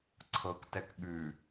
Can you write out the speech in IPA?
ǀʰ ɤ k t ɛ k ɠ ʉ

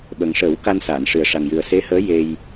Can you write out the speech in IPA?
ɓ ə˨˩ ŋ ʂ əː˨˩˦ w k a˧ n s aː˨˩˨ n ʂ ɨ˨˩ ə̯ ʂ a˨˩ ŋ j ɨ˨˩ ə̯ s e˧˥ h əː˧˥ j e˧ j

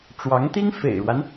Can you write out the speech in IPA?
ʈ͡ʂ w ɑ˧˥ ŋ t̪ i˥ ŋ f ḛ˨˩ ɪ̯ ɻ w a˦ n

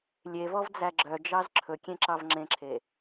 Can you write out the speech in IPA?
lʲ e v ɔ v d͡z æ ɡ͡ǁ œ d͡ʒ ɑ z ǁʰ ɵ kʲ ẽ ǁ ɑ v ŋ͡ǁ ẽ ǁʰ e

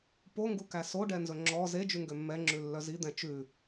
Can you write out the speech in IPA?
p o ŋ ɡ u k æ s o ɖ ɛ n z ɵ ŋ͡ǁ ɔ z e d͡ʒ ʉ ŋ ɡ ø mː ɛ ŋ͡ǁ ʉ lː œ z i d̪ ɛ̃ t͡ʃ ʉ

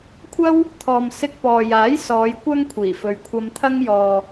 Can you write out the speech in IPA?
kʷʰ ɐ˥ w | t̪ʰ ɔː˨ m s ɪ˧ k̚ p ɔː˨ j aː˨˥ j s ɔː˨˧ j kʷ ɐ˥ ŋ kʷʰ iː˨˩ f ɵ˨ ɥ kʷʰ ɐ˧ m t̪ʰ ɐ˥ ŋ j ɔː˨

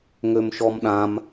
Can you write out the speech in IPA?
ŋ ø m ʃ ɔ m ɗ ã m

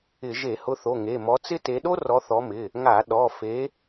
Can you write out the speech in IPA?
ɪ˧˩˧ ʒ e˧˩˧ h ʊ˨˦ θ o˩˧˩ ŋ e˩˧˩ m ɔ˨˦ t͡s ɪ˥ t e˨˦ ɗ o˥ r ɔ˨˦ θ ɔ˨˦ m ɪ˩˧˩ | ŋ a˧˩˧ ɗ ɔ˩˧˩ f e˨˦

